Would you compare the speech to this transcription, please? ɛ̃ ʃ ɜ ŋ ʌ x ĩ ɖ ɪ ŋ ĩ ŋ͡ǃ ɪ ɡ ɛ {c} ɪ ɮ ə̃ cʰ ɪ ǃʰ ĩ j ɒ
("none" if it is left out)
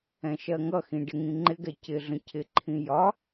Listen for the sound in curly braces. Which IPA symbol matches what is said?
c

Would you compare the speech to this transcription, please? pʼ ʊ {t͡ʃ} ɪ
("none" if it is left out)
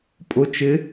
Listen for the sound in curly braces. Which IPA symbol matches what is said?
t͡ʃ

